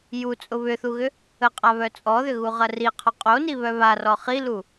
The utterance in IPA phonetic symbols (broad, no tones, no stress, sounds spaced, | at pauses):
j u t͡sʼ ʊ β ʏ θ u ɣ ʏ | ə qʼ a β œ t͡sʼ ɔ ð ʏ ɣ u ʁ ɐ r i qʰ ɔ qʼ o n i β œ β a r ɔ χ i l u